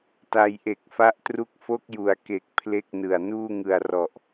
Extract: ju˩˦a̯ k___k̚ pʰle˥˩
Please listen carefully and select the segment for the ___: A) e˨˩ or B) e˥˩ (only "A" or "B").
A